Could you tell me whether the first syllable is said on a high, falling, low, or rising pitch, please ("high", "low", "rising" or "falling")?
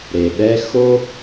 low